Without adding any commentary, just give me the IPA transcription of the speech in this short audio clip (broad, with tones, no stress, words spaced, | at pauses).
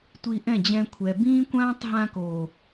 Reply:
tʷi˧ʔɛ̃˦˨ d͡ʑɛ̃˧kʷʰɛ˨ bĩː˦kʷãː˦tˤ ɦã˧koː˨